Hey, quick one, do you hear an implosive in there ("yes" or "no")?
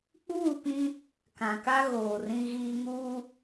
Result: no